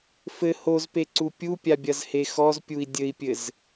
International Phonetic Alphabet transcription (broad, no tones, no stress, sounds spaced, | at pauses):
f ɘ h o z p e ǀ u pʲ u pʲ a bʲ ɐ z h e x ɔ z pʲ u i̯ dʲ ɘ i̯ pʲ ɘ z